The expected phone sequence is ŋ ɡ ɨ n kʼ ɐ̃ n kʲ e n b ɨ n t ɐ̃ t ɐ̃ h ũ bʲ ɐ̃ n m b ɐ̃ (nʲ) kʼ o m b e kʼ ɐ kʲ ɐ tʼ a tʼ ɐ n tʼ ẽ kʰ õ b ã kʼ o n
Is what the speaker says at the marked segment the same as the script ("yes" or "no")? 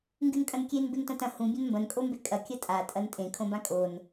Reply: no